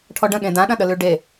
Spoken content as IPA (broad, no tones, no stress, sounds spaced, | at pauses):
ʈʰ ɔ ɖ ə̃ ɠ ẽ d ã ɗ ɐ̃ ɗ ə l ʉ ɖ e